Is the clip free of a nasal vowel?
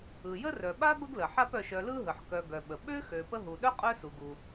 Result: yes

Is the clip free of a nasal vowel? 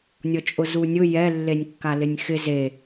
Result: yes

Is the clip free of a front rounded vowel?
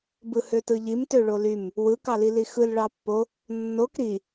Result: no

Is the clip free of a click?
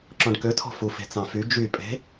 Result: no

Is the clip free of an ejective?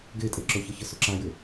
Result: no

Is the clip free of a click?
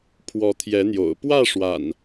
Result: yes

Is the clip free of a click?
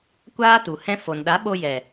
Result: yes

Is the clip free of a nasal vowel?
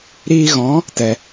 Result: no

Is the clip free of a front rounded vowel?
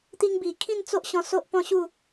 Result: yes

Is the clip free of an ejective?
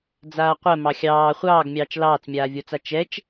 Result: yes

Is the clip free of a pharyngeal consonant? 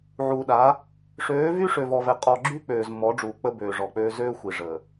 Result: no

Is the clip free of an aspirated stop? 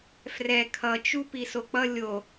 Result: no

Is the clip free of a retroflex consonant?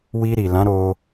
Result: yes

